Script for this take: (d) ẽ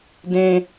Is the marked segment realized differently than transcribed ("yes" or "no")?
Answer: no